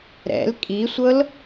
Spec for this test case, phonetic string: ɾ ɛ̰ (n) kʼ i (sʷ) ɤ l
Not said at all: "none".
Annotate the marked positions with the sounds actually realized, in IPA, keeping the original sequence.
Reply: l, sʷ

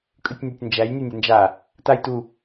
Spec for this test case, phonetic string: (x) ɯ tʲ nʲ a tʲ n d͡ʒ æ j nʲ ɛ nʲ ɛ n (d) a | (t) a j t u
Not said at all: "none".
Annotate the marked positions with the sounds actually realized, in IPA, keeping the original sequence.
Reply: kʼ, d͡ʒ, t

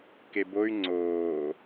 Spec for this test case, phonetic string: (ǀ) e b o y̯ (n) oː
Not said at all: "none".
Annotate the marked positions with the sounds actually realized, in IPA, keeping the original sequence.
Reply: k, ŋ͡ǀ

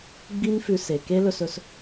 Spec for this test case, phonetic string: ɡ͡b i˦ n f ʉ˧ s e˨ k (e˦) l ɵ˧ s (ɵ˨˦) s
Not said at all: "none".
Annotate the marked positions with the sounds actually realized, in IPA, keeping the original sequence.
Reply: e˦, ɵ˧

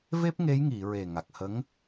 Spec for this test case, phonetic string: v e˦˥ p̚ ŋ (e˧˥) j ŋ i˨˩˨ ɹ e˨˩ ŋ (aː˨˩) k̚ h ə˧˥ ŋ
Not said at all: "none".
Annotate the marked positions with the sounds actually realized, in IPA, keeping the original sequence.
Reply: e˧˥, a˨˩

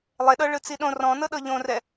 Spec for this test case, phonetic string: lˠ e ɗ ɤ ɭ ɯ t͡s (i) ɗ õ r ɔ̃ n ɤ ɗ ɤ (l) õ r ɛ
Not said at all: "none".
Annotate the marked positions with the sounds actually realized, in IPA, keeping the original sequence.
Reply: i, ʎ

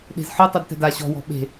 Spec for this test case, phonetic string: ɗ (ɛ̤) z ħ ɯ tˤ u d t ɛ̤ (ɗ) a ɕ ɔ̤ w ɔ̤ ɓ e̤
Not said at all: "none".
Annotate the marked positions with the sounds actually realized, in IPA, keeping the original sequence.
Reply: e̤, d

